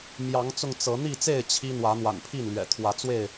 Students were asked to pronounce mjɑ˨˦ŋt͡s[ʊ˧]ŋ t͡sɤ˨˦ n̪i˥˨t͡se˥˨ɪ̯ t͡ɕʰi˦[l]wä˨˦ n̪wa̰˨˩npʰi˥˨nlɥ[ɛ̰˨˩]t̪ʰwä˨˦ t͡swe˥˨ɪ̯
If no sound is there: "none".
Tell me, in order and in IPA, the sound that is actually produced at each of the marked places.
ʊ˧, n̪, ɛ̰˨˩

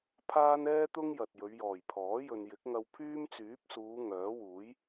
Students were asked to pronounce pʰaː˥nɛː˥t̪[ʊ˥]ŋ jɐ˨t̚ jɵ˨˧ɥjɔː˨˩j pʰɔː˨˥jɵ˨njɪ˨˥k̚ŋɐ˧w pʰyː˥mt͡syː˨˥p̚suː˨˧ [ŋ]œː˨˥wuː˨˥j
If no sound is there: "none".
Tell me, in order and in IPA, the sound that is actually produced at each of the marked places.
ʊ˥, ŋ

